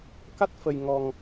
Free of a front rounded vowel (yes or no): yes